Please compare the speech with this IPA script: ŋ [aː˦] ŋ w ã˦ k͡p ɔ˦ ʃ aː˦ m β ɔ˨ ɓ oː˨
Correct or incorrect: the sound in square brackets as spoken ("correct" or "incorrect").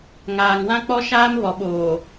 incorrect